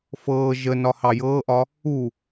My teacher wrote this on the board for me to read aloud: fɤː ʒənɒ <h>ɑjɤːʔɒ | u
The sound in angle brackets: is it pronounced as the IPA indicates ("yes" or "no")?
yes